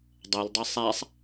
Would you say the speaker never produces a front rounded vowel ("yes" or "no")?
yes